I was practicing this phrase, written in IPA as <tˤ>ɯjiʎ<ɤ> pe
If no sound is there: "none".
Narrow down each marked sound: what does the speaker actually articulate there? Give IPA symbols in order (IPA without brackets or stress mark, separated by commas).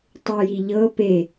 tˤ, ɤ